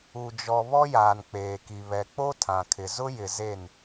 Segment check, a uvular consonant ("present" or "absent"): absent